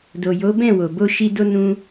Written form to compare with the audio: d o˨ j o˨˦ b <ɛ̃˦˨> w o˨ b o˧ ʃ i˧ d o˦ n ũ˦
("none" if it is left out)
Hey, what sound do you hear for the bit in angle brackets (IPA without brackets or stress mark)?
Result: ɛ̃˦˨